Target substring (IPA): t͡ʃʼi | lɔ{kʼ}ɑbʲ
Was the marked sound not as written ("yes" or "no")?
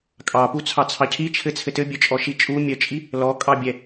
no